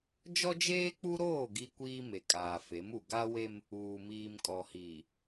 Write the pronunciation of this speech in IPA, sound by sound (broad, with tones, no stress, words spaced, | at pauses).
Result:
d͡ʒɔ˦d͡ʒeː˦k͡pu˦ɾoː˦˨ ɡi˦kʷiː˦ me˨ kʼaː˨fe˨˦mu˨ ɡa˦we˦m | uː˨miː˨mkʼɔ˨hiː˨